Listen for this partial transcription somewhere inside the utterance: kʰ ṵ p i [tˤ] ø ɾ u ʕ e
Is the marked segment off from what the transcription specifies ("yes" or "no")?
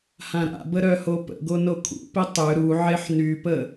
no